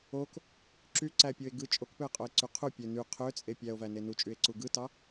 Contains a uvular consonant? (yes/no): yes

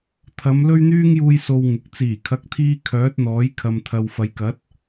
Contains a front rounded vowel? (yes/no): yes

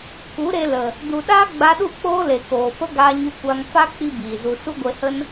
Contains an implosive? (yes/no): yes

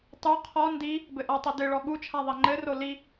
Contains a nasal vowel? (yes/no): no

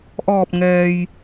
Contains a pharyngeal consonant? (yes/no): no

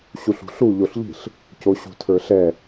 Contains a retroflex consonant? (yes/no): no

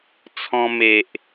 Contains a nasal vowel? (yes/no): yes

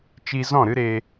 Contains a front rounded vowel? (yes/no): no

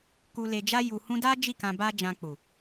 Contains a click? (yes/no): no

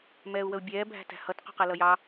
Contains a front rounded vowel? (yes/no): no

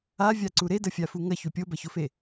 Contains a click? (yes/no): yes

